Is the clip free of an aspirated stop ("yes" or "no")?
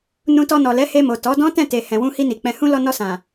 yes